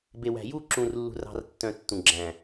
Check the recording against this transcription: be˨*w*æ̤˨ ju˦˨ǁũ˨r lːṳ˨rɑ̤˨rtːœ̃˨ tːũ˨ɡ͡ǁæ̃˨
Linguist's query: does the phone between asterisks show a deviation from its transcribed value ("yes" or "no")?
no